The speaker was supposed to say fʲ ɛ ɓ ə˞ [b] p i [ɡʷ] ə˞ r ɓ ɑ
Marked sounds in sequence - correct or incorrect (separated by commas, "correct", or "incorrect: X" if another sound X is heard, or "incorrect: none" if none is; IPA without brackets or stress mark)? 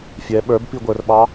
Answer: correct, correct